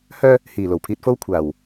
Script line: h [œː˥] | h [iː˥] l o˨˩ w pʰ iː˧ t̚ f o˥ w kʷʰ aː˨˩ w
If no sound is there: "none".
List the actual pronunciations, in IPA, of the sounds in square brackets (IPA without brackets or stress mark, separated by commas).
œː˥, iː˨˩